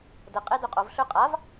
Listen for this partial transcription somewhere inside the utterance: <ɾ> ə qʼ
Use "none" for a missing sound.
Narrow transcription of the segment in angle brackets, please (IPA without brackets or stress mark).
d